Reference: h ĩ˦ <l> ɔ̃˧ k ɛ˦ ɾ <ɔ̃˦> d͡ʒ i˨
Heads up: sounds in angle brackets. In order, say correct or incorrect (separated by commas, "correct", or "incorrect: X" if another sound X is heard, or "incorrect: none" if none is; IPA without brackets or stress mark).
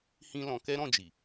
correct, incorrect: ɔ̃˦˨